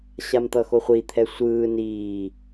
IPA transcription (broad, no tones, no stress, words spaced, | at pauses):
ɕamt̪ʌxoχʷi t̪ʰɛsʷɯː niː